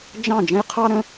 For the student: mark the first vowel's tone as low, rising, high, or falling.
falling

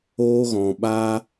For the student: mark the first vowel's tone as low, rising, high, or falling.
high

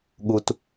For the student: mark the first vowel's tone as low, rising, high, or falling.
low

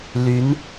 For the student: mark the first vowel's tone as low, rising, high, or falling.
rising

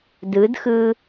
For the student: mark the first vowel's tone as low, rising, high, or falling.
rising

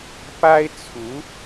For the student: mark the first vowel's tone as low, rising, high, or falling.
high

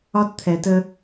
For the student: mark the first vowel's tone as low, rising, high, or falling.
high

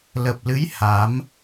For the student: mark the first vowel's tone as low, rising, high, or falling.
low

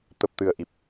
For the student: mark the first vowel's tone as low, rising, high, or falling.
low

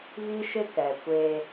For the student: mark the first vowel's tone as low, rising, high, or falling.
high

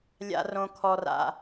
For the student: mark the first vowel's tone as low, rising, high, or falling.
high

